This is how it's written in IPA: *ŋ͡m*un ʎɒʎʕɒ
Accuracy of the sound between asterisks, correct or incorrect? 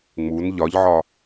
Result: correct